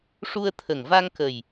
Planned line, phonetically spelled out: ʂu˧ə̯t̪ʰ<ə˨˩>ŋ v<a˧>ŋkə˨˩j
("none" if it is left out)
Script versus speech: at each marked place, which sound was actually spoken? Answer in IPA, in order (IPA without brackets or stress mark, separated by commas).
ə˨˩, a˧